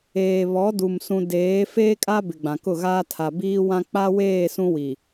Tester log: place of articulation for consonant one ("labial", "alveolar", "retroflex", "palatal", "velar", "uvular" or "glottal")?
labial